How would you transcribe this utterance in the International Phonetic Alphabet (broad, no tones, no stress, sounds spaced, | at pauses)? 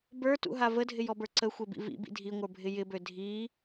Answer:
b ə˞ t ṵ ɦ a v ə dʱ ɪ j ɔ b ə˞ ǀ ə xʷ e b ḭ v ḭ b ḭ dʱ i ŋʷ ə˞ bʱ ɪ j ɪ b ø dʱ i